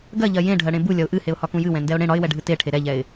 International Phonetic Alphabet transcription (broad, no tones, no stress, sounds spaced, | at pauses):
ɡ ɜ ʎ ɜ j ẽ ɖʱ ɜ ɽ ẽ b u lʲ ɒ ʊ̯ ʔ ɨ h e ʊ̯ h ɒ k ũ j ɨ w ɛ̃ n d ɛ ʊ̯ ɽ ẽ ɽ ɒ ɪ̯ w ɛ ɖʱ ɨ t e ʈʰ e ɾ ɛ ʎ ɛ ɪ̯